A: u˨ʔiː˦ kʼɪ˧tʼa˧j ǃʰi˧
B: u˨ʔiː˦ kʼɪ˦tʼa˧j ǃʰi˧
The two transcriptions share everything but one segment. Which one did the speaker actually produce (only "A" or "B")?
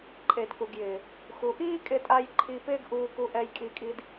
A